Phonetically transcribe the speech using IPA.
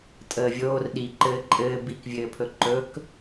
tʼ əː vʲ oː r ɗ i ǃ ɘː ǃʼ ɘː b i k vʲ ɘː pʰ ɵ ǃ ɵ k

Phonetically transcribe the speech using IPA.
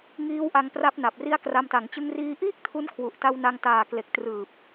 ŋ iː˦˥ w ʔ a˧ ŋ p r a˦˥ p̚ n a˨˩ p̚ r i˦˥ a̯ k r a˧ m t a˩˦ ŋ t͡ɕ ɯ˧ ŋ r iː˧ ʔ iː˥˩ k̚ tʰ u˦˥ n kʰ w u˨˩ ʔ t a˧ w n a˧ ŋ t aː˨˩ k l e˨˩ k̚ t r ɯː˨˩ p̚

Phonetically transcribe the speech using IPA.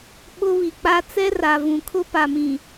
ɓ ʊ˦ β i˨ k͡p a˦ t͡s ɛ˦ r a˨ v ũ˨ kʰ ʊ˦ p a˨ m ĩ˨

